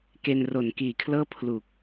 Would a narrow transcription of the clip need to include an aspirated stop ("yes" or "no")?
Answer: yes